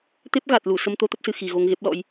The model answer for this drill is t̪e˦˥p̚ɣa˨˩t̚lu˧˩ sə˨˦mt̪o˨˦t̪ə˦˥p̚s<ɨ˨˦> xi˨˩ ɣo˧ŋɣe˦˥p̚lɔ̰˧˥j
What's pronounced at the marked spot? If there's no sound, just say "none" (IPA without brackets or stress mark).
ɨ˨˩